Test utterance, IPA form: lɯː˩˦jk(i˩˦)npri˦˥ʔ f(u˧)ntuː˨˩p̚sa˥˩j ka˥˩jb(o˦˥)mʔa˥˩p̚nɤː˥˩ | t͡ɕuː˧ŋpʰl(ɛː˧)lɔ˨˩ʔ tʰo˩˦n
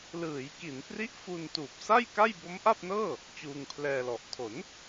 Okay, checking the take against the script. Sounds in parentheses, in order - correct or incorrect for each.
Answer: correct, correct, correct, correct

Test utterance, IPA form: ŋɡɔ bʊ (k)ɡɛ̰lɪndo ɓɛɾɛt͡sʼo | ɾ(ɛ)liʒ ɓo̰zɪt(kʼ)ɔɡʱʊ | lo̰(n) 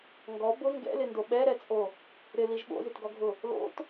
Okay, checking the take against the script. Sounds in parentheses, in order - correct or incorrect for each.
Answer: incorrect: ŋ, incorrect: ɪ, incorrect: ɡ, incorrect: t

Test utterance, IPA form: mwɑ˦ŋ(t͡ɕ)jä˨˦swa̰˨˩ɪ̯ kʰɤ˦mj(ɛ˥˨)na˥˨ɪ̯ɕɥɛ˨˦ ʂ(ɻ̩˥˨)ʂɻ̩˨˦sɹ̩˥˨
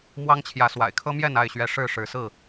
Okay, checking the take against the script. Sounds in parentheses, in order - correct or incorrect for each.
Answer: incorrect: t͡ɕʰ, correct, correct

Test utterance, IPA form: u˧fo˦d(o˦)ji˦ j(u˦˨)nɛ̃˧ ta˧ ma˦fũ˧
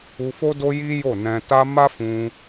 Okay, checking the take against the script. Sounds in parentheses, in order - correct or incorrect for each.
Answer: correct, incorrect: o˦˨

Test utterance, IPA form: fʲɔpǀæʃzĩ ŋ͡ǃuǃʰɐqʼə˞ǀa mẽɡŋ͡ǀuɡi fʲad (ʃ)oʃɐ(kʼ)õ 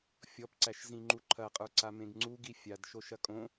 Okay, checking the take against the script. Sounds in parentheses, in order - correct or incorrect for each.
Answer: correct, correct

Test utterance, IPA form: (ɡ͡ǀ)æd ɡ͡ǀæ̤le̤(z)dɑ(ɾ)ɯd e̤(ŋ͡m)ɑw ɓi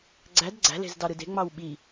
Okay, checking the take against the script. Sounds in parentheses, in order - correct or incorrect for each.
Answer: correct, correct, correct, correct

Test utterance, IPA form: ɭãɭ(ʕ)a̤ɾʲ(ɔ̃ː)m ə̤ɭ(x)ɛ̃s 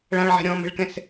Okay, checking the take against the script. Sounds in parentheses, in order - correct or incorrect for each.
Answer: correct, correct, incorrect: k

